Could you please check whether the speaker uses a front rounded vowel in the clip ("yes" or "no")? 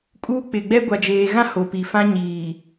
no